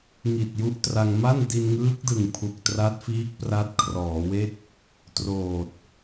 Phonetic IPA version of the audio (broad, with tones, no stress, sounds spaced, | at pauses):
ŋ i˨˩ t̚ j u˦˥ ʔ t r a˧ ŋ m a˥˩ n d i˧ n ŋ ɯː˦˥ k̚ d ɯ˨˩ ŋ pʰ u˨˩ k̚ t r a˦˥ t̚ f iː˦˥ k̚ p r a˦˥ t̚ kʰ r ɔː˩˦ w e˥˩ k̚ | t r oː˨˩ t̚